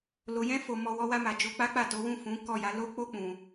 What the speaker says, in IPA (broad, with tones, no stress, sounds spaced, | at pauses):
l o˧ j ɛ̃˦ f o˧ m ɔ˧ w ɔ˦ w a˦ m a˧ d͡ʒ o˧ k͡p a˦ k͡p a˦˨ t o˨˦ w ũ˦˨ f ũ˨˦ k ɔ˦˨ j a˨˦ l o˦ k͡p o˦ k͡p ũ˧